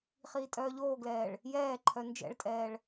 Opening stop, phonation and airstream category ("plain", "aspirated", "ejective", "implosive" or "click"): ejective